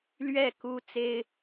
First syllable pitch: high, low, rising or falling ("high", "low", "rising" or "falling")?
falling